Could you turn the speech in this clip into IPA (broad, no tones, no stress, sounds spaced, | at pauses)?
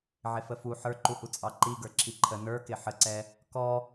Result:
ʕ ɪ f ə f u ħ ə˞ ǃ u h u t͡sʼ ɑ ǃ i ɡ ə˞ ǁ i ǃʰ ə n ə˞ k ɪ ħ ə ǀ ɛ | k ɔ